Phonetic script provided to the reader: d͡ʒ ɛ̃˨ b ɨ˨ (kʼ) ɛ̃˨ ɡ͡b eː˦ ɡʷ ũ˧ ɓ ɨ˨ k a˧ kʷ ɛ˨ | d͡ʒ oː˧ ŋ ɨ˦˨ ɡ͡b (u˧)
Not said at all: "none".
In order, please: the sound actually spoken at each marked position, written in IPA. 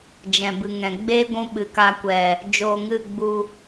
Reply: ŋ, u˧

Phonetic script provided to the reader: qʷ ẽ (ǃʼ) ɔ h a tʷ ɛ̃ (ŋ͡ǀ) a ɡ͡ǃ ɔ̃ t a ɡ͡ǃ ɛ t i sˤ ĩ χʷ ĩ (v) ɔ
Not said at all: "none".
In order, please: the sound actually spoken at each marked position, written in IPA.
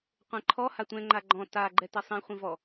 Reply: ǃʰ, ŋ͡ǃ, v

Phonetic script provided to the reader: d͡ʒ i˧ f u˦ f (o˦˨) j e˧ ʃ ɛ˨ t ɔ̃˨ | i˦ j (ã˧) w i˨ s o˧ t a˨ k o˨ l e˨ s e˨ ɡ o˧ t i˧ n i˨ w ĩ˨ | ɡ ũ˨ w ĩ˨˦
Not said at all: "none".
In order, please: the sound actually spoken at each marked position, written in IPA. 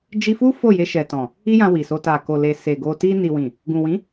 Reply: o˦˨, ã˧

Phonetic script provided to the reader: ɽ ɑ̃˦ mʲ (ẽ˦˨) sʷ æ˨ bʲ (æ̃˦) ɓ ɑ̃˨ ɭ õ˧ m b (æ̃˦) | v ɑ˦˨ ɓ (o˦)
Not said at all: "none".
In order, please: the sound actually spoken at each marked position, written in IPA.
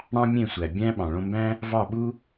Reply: ẽ˦˨, æ̃˦, æ̃˦, u˦

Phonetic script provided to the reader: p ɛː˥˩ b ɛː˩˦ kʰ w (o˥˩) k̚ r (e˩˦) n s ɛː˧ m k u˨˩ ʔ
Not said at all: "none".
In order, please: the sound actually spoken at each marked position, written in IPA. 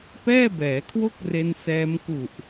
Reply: o˥˩, e˧

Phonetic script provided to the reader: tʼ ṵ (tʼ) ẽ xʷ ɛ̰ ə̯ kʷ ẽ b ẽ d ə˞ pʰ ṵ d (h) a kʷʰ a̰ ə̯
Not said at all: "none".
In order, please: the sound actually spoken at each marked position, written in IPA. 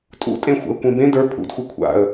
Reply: tʼ, xʷ

